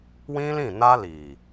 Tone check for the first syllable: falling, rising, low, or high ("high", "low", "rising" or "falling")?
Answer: high